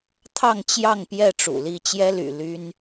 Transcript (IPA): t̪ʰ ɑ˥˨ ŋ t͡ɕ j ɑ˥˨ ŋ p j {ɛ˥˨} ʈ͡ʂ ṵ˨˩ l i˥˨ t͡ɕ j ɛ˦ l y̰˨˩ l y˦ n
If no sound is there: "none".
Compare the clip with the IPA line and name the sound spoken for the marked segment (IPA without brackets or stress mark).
ɛ˥˨